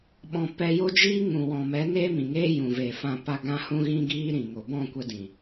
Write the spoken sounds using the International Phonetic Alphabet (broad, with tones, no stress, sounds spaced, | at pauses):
ɓ ɔ̃˧ p ɛ˧ j o˦ d͡ʒ iː˦ ŋ ũ˨ w ɔ̃˨ m ɛ˨˦ n eː˦ m ĩ˨ ŋ eː˦ j ũ˨ v eː˨ f ã˧ p a˧ ɡ ã˦ h ũ˦ ɣ ĩ˦ ɡ iː˦ ɾ ĩ˨ ŋ o˨ b ɔ̃˦˨ kʷ ə˧ d ĩ˨